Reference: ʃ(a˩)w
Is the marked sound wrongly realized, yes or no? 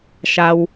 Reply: no